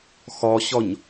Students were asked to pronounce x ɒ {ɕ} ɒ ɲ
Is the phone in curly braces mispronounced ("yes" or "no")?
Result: no